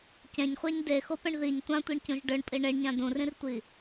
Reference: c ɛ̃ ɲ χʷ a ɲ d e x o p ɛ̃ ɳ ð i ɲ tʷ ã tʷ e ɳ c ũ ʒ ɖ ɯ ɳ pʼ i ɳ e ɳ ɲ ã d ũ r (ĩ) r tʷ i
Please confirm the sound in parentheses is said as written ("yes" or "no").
yes